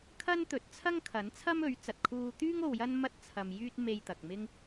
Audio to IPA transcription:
kʰ ɐ˥ n t̪ ɵ˨˥ t̚ t͡sʰ ɐ˥ ŋ kʰ ɐ˨˥ n t͡sʰ ɐ˥ m ɵ˨˥ ɥ t͡s ɐ˨ t̚ kʰ uː˧ t̪ yː˥ ŋ o˧ w j ɐ˥ n m ɐ˧ t̚ t͡sʰ ɐ˨ m j yː˧ t̚ m e˧ j t̪ ɐ˨ k̚ m ɪ˥ ŋ

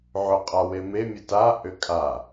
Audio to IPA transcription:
ʕ ʏ qʼ a w e m e mʲ ə t a ʔ ʏ kʼ a

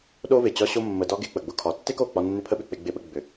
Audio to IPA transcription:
ɗ o˦ v ɪ˨ t͡ɕ ɒ˦ ɕ o˦ mː ə˧ d ɒ˦ ɡ e˧ k͡p ə˨ ɡ͡b ʊ˧ kʰ ɒ˨˦ tː e˦ k o˦˨ k͡p ɒ˧ nː ɪ˦ pʰ ə˦ ɓ ʏ˨ k͡p e˦ ɡ͡b ɪ˦ ɓ ə˦ ɡ͡b ʏ˨

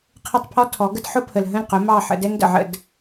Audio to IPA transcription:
qʰ ə˥˩ tˤ pʰ ɔ˥ tʰ ɔ˩˥ ɡ ə˥ d ħ ʊ˥ pʰ ə˩ l ɦ ə̃˥˩ l q ʊ˩˥ m ɑ˥˩ ħ ə̰˩˥ d ɛ˥ ŋ d ə̰˩ ʕ ə̰˥˩ d

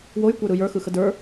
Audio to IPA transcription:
w o j kʷ ə˞ ɾ ɯ j ə˞ x ɯ x ə d ə˞

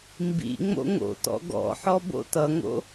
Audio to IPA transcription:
m b ḭ ŋ͡m o̰ ŋ o̰ t ɔ̰ ɡ ɔ̰ ħ ɔ b o̰ t ʌ ŋ o̰

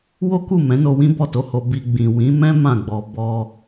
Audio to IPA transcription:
w o˦ k u˦˨ m ɛ̃˨˦ n o˧ w ĩ˦ b ɔ˦˨ t o˧ h o˧ b i˧ ɡ͡b ĩ˨ w ĩ˨˦ m ɛ̃˦ m ã˦˨ ɡ͡b ɔ˧ b ɔ˧

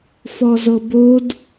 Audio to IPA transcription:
f ɔ z ɤ b o d

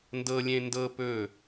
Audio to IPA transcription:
n d ɤ lʲ ẽ n d ɤ p ɵ

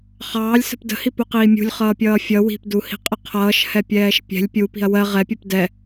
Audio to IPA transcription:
χ ɑː lʲ s ə̤ p d ə̤ h i p u q iː mʲ ṳ lʲ χ ʌː pʲ ʌː fʲ ʌ w i̤ p d u h i̤ qʼ ə qʰ ʌː ʃ h ɛ pʲ ɛː ʃ pʲ ɛ̤ lʲ pʲ u p i̤ ɐ̯ w ɜ ʁ ɛ pʲ ʊ p d ɛ

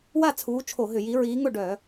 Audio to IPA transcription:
w a˥˨ t͡sʰ uː˨˦ t͡ʃʰ o˧˩˧ ɦ ʏ˧˩˧ j i˨˦ ɹ iː˨˦ ŋ ʊ˥˨ ɖ œ˧˩˧

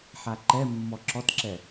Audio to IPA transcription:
ħ a ǃ ɛ mː ɔ ǁ ɔ t ǁ ɛ

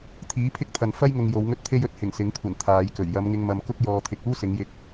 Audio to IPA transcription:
t̪ʰ iː˨˥ pʰ ɪ˥ k̚ t̪ʰ ɐ˨ n f ɐ˥ j ŋ ʊ˨ ŋ j o˨˧ w ŋ ɵ˥ t̚ t̪ʰ e˥ j ɵ˨˥ t̚ h ɪ˨˩ ŋ s ɪ˨˥ ŋ kʷʰ ɐ˨˩ n t̪ʰ aː˨˧ j k ɵ˨˩ ɥ j ɐ˨˧ m ŋ ɪ˧ ŋ m ɐ˨ m k ʊ˥ k̚ j ɔː˧ t̪ʰ ɪ˧ k̚ uː˥ s ɪ˨˧ ŋ j ɪ˧ k̚

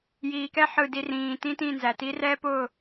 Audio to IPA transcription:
j iː˨ k ɛ˦ ħ ɯ˨ d i˨ r ĩː˨ t ĩ˦ t ĩ˦˨ n z æ˨ t i˦ r ɛː˦ p ʊː˦˨

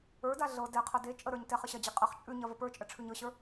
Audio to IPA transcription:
ə˞ d a ɮ ɤ d ɛ qʰ ɐ d e t͡ʃʼ ə ɾ ə˞ ɲ t ɛ χ ə ɕ ɐ d͡ʑ i qʼ ɐ χ t͡ʃʼ ʉ ɲ ɐ v ə p ə˞ t͡ʃʼ ə ʈ͡ʂʰ ʉ ɲ ɤ ɕ ə˞

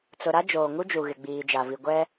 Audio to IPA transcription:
t͡s ʊ˨ ɾ a˦ d͡ʒ oː˨ ŋ u˦ d͡ʒ u˨ ɣ ɪ˨ ɡ͡b iː˨ d͡ʒ a˨ v i˨ ɡʷ ɛ˦

